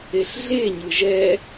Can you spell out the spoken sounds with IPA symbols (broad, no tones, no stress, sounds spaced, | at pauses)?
e ɬ ɮ e ɲ ɯ ʒ ɛ